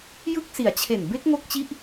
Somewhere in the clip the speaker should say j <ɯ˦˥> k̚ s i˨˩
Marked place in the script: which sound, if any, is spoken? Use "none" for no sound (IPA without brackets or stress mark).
ɯ˦˥